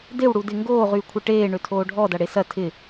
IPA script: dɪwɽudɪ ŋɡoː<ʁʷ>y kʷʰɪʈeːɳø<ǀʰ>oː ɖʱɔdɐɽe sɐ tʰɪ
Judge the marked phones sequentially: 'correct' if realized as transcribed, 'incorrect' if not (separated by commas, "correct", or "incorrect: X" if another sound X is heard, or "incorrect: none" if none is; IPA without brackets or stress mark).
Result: incorrect: ʁ, incorrect: tʰ